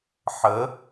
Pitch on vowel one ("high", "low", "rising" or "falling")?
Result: rising